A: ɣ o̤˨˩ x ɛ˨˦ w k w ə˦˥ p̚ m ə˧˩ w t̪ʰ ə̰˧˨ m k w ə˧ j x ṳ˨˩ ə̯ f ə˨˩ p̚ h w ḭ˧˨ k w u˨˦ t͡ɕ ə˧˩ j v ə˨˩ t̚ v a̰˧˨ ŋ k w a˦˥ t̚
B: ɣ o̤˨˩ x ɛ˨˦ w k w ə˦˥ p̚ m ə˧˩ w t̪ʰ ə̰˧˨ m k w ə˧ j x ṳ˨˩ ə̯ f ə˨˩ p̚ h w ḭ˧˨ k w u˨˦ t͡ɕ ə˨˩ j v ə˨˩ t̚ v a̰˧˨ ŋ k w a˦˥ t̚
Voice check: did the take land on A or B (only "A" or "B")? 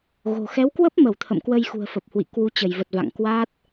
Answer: A